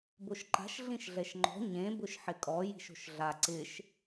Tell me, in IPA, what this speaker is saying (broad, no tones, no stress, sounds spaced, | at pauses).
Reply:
b o ʃ ǃ a̤ ʃ ɮ ĩ ʃ ɮ ɛ ʃ ŋ͡ǃ ɔ̤ ɲ ẽ b ʊ ʃ ħ ɪ kʼ ɔ j i̤ ʃ o̤ ʃ ɮ a ǀ ɪ ʃ